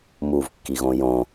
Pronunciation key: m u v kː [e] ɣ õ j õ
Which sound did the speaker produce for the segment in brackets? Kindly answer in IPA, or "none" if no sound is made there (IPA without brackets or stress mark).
i